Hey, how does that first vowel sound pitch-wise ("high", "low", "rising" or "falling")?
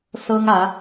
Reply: high